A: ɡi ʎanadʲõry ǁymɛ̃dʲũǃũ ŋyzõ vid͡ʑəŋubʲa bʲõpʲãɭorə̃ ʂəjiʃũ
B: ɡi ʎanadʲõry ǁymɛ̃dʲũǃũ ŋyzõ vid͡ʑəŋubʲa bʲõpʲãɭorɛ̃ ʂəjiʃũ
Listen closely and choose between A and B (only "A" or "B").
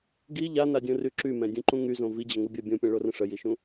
A